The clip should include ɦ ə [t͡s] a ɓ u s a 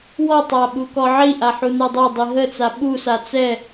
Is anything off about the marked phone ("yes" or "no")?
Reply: no